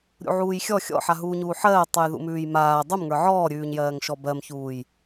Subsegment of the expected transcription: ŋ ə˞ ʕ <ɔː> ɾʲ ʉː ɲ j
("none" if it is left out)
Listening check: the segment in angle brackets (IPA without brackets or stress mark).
ɔː